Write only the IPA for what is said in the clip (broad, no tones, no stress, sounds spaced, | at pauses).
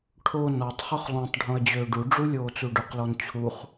ʈʰ o n ɔ tˤ χ ʊ χ lˠ ũ tˤ ɖʱ õ ɐ̯ d͡ʑ øː ɖ u ɖ͡ʐ u lʲ oː t͡s u ɖ ʊ q l ɔ n t͡ɕʰ u χ